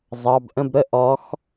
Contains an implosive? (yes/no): no